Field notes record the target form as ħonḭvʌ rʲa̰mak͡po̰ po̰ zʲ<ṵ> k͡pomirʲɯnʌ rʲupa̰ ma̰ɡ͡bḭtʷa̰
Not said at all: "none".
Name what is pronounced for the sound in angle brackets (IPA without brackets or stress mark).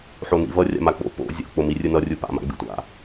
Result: o̰